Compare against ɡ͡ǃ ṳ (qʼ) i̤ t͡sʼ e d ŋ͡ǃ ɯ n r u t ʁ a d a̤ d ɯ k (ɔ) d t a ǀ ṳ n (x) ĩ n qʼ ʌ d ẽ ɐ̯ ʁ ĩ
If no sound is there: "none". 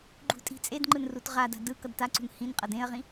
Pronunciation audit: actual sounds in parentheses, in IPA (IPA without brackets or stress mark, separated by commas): tʼ, ʌ, h